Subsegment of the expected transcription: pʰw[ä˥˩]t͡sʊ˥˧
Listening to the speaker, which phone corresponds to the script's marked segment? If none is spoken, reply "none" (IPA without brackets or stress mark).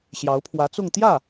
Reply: ä˧˥